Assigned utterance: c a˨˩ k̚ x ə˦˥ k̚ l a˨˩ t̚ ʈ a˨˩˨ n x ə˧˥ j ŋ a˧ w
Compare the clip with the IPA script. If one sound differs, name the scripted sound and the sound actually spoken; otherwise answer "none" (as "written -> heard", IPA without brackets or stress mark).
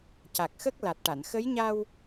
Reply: ŋ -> ɲ